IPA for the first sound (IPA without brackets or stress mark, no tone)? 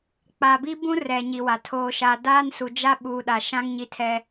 k͡p